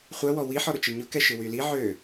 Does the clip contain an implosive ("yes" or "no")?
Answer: no